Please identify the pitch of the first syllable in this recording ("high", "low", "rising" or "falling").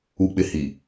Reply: low